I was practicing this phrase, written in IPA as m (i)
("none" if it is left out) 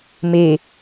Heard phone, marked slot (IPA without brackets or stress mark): e